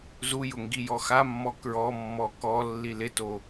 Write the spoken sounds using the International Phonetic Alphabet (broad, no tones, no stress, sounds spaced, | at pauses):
z u j ʊ ŋ ɡ i j ɔ x a mː ɔ k ɹ ɔ mː ɔ k ɔ lː i l ɪ t o